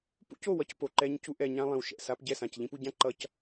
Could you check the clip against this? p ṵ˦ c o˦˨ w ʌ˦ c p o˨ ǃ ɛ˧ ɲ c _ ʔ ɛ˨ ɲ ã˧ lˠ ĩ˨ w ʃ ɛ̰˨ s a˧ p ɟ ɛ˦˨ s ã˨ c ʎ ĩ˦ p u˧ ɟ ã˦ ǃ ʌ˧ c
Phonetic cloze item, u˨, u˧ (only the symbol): u˧